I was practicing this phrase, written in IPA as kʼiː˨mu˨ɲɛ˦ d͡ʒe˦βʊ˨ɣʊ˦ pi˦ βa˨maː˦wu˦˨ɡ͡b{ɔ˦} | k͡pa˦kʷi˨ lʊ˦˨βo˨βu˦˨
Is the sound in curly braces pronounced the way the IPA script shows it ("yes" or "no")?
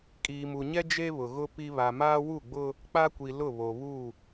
no